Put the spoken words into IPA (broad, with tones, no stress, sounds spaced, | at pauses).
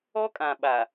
ɔ˦ kʼ ã˨ ɓ a˨